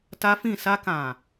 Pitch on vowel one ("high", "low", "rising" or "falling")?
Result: high